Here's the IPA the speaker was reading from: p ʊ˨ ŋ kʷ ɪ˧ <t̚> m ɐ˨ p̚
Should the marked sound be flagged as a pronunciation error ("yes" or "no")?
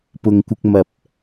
yes